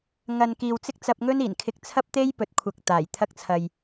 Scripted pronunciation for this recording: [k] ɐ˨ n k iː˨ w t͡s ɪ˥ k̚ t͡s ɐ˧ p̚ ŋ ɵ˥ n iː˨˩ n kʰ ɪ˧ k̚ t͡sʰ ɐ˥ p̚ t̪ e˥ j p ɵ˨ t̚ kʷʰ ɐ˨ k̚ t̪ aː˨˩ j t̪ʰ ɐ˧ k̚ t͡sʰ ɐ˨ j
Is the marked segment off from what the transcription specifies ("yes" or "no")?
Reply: yes